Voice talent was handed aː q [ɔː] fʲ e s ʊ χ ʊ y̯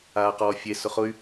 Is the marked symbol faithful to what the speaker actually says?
yes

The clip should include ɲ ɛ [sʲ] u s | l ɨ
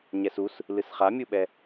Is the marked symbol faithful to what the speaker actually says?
no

